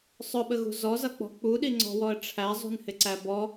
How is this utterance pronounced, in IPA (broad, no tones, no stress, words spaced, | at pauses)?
sˤʊɓəɣṳ zɔzʌk͡pɔ̤ k͡puɗiŋ͡ǀɔ̤wɔə̯ ʈ͡ʂʰæzˤṳnhɪǀæ bɔ